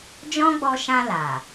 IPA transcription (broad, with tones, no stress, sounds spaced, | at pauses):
d͡ʒ ɔ̃˦ ɡ͡b ɔ˧ ʃ ã˧ l a˨